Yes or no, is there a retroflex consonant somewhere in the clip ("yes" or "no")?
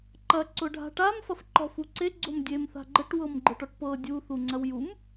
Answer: yes